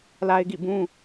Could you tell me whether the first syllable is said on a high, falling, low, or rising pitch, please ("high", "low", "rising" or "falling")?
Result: high